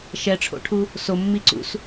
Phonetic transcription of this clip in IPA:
ʃ ɛ ʈ͡ʂʰ o̰ ʈʰ u | s o mː i ǀ ṵ s

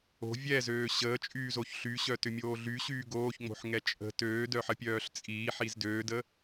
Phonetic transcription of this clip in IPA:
o̤ vʲ ɛ z øː ɕ əː t͡ʃʼ yː z o ç ɬ y ɕ œ t ʏ mʲ oː ɮ y ɕ yː ɡ oː ç ŋ͡m o̤ ħ ŋ ɛ t͡ʃʼ ə̤ t øː d œ ħ ə pʲ œː ɬ t͡sʼ iː ħ i z d øː d ə

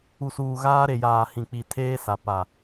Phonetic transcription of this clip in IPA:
u˨ s uː˨ ɣ aː˦ ɾ e˨ j aː˨ h ĩ˨ k͡p i˨ tʰ eː˦ s a˨ p a˨

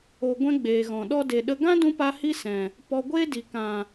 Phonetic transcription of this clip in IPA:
o˧ ɡʷ ɛ̃˦ ɡ͡b eː˨ ɣ ɔ̃˨ ɗ ɔ˧ d e˨ ɗ ə˧ ɡ ã˦ d ũ˧ p a˧ h i˦ s ɛ̃˨ | p ɔ˧ ɡʷ eː˦ d i˨ k ã˨

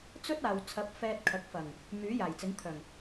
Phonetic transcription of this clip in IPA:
t͡s ɵ˥ t̚ aː˨ w t͡sʰ ɐ˨˥ p̚ f ɛː˧ t̚ kʰ ɐ˨˥ k̚ f ɐ˨˩ ŋ | m yː˨˥ j aː˨˩ j t͡s ɪ˨˥ ŋ t̪ʰ œː˨˩ ŋ

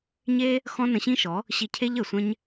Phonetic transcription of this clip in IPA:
ɲ e˦ | x ɔ̃˦ n ə̃˧ ɕ ĩ˦ ʃ ɔ˨˦ | ɕ i˧ cʰ e˦ ʎ ə˨ sʷ ɛ̃˦ ɲ

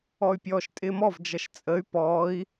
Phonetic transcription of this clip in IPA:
ɔ y̯ pʲ ɔː ʃ tʼ ɪː m ɔ v d͡ʒ ʌ ʃ t͡sʼ ə y̯ p ɔː i̯

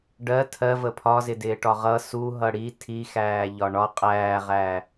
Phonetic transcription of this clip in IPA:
ɖ ɜ tʰ ɜ v ə pʰ ɒ z ɪ d ɪː ʈ ɒ ʁ ʌ s u ɦ ʌ ɽ i tʰ i x æː ʎ ɒ ɳ ɒ qʼ æː ʁ æː

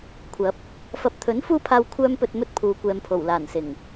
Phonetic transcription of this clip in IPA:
kʷʰ ɐ˨˥ p̚ | f ɐ˨ p̚ t̪ʰ ɵ˨˥ n f uː˥ pʰ aː˧ w kʷʰ œː˥ m p ɵ˧ t̚ m ɵ˥ t̚ pʰ uː˨˧ kʷ ɛː˨ m pʰ o˨˩ w l aː˨˩ n s ɪ˨˩ ŋ

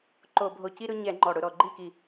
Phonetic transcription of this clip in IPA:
ǃ o˧˩˧ bʱ o˧˩ c i˦ ɾ ʊ˦ ɲ ɛ˧˩˧ ŋ͡ǃ ɔ˧˩ ɽ ʊ˥˩ ɾ ɔ˧˩ ɡ͡ǃ i˥˩ k i˧˩

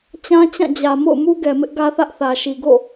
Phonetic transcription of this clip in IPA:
t͡ɕ ã˦ t͡ɕ ã˦˨ d͡ʑ ä˨ m o̰˦˨ ʊ̯ m u˦ ɡ ɛ˨ m ɪ˦ ʔ ɡ ä˦ θ ä˦ ʔ θ ä˨ ʃ i˨ ɡ o̰˦˨

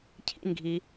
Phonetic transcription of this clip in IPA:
cʰ ḭ n ɡʱ i

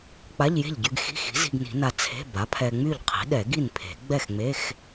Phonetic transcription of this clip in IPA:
k͡p a˧˥˧ ʎ j e̤˥˩ ʎ ɟ y˧ ɡ x i̤˧˥˧ x i̤˩˥ z i̤˧ ɡ n i̤˨˩˦ n a˧ t͡sʰ e̤˧˥˧ b a˩˥ pʰ ɛ˧ ŋ͡m y˥˩ ʎ qʰ i̤˩˥ ɗ ɛ˨˩˦ ɡ i˥˩ n pʰ e̤˨˩˦ ɡ͡b ɛ˥˩ x ŋ͡m e˧˥˧ x

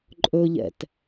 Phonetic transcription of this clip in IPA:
ǃʼ ɵ ʎ ɛ̰ t

